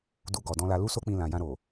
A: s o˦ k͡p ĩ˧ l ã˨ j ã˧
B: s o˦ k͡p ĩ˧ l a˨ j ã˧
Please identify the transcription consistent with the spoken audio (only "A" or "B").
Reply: A